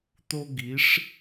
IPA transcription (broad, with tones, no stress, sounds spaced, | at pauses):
t̪ o˥ ɡ i˧˥ ʂ